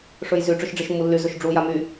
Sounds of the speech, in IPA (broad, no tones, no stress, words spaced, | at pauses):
ʂɵjzy ʈ͡ʂɵʃɖ͡ʐiʃmːulːy zɵʃɖ͡ʐu jamy